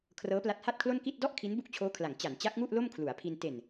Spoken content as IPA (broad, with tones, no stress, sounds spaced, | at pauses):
kʰ r ɤː˦˥ p l a˦˥ t̚ h a˥˩ t̚ kʰ l o˥˩ n k i˥˩ t̚ d ɔ˥˩ ʔ kʰ i˦˥ n b u˥˩ k̚ t͡ɕʰ oː˦˥ kʰ l a˩˦ ŋ t͡ɕ a˩˦ n t͡ɕ a˦˥ k̚ ŋ u˥˩ ʔ l o˥˩ m kʰ l u˩˦ a̯ pʰ i˧ n t e˨˩ n